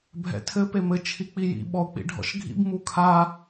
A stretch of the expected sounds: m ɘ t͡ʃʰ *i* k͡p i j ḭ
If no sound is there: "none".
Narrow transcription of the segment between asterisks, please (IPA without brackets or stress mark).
i